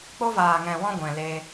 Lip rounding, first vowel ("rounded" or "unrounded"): rounded